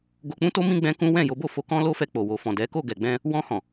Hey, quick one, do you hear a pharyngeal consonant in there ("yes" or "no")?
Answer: no